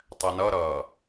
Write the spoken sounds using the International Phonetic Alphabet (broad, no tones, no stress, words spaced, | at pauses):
tˤɛnʌɾʌː